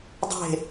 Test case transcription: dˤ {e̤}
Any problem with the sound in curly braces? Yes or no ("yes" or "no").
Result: no